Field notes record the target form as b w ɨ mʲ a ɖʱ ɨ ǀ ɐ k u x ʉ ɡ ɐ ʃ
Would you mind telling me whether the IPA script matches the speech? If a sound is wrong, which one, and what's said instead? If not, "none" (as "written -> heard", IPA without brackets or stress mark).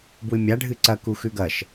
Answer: none